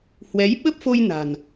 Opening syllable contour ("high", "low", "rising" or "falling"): rising